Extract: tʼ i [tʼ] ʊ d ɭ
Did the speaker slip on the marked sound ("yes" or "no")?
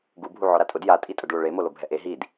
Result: no